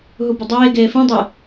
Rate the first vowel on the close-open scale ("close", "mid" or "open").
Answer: close